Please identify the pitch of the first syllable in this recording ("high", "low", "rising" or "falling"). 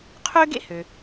high